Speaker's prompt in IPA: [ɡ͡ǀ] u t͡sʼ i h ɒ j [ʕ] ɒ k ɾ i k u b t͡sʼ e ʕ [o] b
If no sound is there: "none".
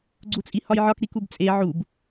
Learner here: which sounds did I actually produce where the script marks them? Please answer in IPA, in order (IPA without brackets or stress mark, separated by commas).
ɡ͡ǀ, ʕ, u